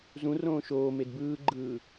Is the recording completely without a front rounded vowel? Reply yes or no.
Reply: yes